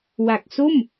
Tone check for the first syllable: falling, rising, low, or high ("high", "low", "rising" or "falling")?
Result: low